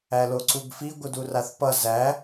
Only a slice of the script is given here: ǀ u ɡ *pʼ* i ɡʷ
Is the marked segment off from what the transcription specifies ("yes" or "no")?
yes